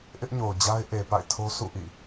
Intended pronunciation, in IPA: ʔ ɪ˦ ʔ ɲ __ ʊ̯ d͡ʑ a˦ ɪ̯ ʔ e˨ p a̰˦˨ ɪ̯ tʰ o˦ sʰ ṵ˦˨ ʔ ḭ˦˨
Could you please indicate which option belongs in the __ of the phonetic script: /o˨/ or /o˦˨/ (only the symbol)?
o˨